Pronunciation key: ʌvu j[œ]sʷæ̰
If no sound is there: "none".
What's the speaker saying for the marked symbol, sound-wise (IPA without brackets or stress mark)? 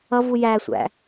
æ